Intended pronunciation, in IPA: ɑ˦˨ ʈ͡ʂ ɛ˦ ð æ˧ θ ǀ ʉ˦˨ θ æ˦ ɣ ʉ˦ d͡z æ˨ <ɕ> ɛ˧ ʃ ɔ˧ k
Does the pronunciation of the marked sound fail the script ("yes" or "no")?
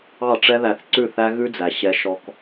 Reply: no